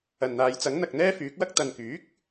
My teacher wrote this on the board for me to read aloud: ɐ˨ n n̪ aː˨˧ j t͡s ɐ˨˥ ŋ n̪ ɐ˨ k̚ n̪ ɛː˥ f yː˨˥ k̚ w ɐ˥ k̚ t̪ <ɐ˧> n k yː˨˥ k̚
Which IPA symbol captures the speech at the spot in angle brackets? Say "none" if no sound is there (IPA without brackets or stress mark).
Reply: ɐ˨